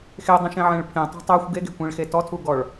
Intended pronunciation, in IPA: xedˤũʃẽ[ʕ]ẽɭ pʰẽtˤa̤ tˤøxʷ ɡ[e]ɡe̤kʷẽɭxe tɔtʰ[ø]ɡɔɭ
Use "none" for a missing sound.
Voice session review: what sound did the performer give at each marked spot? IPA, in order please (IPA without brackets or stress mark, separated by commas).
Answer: ʕ, e, u